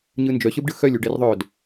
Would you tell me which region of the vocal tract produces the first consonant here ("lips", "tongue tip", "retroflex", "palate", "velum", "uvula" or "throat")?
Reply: palate